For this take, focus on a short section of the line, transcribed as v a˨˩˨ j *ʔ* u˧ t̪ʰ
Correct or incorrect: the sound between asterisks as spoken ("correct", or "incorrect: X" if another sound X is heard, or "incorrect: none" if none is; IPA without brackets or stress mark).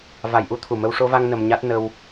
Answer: correct